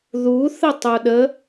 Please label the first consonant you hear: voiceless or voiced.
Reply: voiced